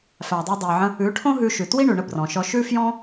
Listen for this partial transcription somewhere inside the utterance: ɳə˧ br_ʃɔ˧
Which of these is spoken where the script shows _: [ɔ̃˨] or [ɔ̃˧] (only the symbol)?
ɔ̃˨